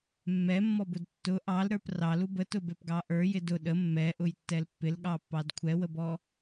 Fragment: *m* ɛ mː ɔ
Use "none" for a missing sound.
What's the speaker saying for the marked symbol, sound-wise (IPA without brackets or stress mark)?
mː